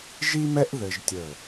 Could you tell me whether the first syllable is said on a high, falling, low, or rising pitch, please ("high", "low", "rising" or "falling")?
high